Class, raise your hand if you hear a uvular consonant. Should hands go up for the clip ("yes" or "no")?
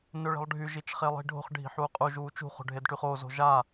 yes